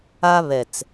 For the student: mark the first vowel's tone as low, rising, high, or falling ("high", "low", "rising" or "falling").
high